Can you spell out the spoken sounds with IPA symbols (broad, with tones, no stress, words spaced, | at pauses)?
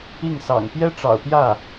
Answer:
i˥˩ŋsɑ̰˨˩ŋ pjɛ˥ʈ͡ʂɑ̰˨˩ʊ̯pjä˥˩